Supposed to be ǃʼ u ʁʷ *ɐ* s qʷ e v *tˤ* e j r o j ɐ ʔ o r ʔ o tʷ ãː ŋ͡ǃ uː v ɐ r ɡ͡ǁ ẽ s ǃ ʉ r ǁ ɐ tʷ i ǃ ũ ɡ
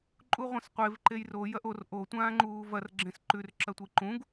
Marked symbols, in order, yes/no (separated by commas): no, no